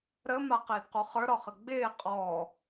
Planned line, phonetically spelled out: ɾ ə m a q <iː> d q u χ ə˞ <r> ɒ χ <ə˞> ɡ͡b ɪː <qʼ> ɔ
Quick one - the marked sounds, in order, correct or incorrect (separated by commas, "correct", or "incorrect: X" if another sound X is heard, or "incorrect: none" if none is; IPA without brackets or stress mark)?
incorrect: ɪː, incorrect: ɾ, incorrect: ə, correct